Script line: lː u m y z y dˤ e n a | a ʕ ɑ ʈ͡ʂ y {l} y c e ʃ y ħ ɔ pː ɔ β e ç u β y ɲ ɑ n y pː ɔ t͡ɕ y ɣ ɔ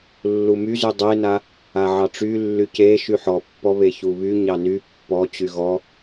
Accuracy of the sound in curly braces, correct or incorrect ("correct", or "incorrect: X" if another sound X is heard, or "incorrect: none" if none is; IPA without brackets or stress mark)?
incorrect: lː